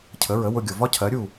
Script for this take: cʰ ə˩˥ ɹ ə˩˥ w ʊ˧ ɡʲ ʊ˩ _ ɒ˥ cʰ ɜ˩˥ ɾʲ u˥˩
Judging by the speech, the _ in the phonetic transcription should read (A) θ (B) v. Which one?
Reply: B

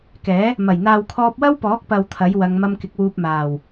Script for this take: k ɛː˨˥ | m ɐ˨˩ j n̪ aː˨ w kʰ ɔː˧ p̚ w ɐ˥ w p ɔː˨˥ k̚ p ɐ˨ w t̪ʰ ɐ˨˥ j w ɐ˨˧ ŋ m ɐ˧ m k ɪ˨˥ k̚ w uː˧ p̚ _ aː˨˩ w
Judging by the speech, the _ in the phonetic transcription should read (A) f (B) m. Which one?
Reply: B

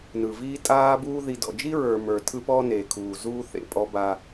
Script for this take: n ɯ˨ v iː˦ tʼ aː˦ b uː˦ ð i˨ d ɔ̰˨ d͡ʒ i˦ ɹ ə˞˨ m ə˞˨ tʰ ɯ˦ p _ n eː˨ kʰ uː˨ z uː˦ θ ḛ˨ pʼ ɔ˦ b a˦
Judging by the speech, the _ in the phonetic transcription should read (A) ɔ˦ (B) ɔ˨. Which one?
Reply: A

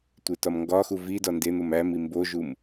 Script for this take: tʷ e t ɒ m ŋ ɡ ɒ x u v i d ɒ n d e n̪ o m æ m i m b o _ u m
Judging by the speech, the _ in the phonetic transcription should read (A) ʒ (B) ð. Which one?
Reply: A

